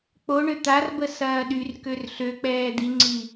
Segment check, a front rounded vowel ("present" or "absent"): present